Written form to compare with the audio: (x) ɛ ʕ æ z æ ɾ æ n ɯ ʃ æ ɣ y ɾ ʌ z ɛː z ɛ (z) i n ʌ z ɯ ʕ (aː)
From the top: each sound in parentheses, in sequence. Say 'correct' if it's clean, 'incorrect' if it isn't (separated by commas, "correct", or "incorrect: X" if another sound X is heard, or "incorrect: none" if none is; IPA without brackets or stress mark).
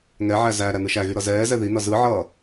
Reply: incorrect: ŋ, incorrect: ð, incorrect: ʌː